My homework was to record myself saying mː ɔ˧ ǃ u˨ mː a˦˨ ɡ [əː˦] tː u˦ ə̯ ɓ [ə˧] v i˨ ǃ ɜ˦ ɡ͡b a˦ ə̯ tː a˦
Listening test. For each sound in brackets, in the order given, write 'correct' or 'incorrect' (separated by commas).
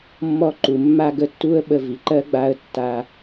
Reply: incorrect, correct